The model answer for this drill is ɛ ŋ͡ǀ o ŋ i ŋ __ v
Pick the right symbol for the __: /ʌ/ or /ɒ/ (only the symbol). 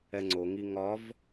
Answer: ɒ